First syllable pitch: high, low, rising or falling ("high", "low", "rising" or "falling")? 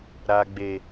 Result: high